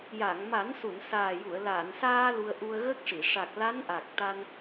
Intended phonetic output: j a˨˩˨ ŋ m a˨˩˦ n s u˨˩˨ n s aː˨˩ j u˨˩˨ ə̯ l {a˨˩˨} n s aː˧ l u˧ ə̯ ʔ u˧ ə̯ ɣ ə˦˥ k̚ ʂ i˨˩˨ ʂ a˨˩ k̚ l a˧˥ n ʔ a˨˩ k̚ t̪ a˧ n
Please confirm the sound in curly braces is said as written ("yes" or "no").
yes